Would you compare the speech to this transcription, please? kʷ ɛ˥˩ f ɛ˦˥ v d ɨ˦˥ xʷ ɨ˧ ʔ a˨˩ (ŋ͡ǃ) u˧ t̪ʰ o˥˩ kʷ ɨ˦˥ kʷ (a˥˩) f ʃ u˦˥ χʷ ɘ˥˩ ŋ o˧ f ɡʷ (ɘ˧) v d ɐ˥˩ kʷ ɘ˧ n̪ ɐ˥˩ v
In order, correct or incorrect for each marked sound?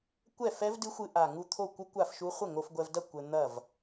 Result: incorrect: ŋ, correct, incorrect: ɛ˧

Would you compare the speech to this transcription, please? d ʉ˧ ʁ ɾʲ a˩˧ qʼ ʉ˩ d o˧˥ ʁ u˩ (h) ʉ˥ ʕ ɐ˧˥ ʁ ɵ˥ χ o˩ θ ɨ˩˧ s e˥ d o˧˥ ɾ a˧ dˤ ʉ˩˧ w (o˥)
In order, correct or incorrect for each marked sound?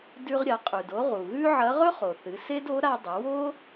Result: incorrect: ɣ, correct

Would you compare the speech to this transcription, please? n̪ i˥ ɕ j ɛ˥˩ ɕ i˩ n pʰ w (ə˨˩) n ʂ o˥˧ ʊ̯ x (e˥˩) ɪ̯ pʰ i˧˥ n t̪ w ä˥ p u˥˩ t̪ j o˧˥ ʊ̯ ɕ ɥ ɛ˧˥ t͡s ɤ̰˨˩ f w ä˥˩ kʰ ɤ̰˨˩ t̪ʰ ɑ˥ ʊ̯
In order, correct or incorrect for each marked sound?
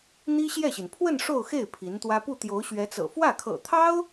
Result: incorrect: ə˥˧, correct

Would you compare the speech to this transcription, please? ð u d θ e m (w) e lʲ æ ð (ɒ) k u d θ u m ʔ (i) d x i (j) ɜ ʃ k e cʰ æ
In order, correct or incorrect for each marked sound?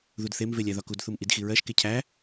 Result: incorrect: v, correct, correct, incorrect: ɹ

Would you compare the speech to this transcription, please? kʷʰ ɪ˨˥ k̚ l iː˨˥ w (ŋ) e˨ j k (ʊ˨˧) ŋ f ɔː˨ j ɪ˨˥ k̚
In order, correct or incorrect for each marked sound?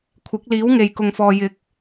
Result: correct, incorrect: ʊ˨

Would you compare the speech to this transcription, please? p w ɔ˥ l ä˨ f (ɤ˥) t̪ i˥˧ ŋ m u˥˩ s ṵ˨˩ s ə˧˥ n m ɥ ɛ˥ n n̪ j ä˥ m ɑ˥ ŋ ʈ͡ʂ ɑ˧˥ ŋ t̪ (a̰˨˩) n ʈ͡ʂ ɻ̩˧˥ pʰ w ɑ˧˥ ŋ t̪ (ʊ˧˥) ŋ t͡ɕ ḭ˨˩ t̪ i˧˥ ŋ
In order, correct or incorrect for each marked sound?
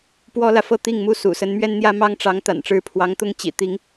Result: incorrect: ɤ˥˧, correct, incorrect: ʊ˥˩

